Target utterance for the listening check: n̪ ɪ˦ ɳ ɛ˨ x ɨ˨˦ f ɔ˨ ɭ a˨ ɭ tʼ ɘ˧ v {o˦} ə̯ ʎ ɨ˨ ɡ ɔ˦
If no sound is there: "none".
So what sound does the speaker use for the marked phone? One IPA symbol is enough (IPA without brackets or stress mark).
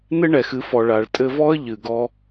ɔ˦